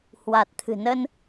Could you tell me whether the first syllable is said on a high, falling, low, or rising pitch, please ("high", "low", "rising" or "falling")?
low